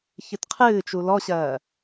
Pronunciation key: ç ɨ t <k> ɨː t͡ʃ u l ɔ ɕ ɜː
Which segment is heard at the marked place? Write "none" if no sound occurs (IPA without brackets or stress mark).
qʰ